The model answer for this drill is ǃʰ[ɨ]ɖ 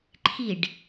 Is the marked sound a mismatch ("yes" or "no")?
yes